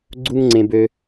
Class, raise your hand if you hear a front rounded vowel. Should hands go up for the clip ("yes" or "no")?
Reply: yes